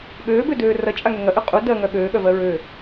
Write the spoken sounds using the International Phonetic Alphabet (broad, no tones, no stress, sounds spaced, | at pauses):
ɠ øː b ø d øː r ɐ t͡ʃʼ a ŋ ø ŋ ɐ ʔ ø qʼ u d ɜ ŋ œ ɠ øː ɠ œ v ɜ ɹ ø